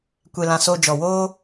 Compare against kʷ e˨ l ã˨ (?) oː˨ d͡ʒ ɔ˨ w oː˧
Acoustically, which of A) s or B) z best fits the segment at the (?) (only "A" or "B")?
A